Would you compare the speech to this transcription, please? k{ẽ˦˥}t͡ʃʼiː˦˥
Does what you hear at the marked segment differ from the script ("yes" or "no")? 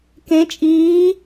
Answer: no